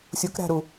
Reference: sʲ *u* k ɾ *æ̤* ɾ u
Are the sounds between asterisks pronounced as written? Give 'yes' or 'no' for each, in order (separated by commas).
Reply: yes, yes